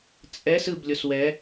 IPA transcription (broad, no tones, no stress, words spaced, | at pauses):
t͡sʼɛs ɯblʲos wɛ